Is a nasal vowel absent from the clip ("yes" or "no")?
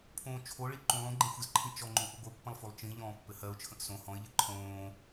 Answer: no